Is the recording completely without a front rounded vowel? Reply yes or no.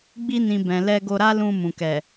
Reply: yes